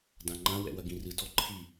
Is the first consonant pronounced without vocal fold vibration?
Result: no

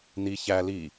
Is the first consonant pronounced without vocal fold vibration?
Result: no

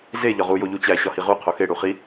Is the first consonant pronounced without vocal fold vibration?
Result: no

